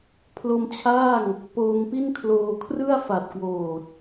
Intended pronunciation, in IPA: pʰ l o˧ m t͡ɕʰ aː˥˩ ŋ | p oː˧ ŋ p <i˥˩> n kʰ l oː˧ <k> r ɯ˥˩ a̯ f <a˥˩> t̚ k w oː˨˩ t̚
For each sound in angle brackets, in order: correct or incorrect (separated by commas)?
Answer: correct, incorrect, incorrect